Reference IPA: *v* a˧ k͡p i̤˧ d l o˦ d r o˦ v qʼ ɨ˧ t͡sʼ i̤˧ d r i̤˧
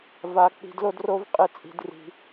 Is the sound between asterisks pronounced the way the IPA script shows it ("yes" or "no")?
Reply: yes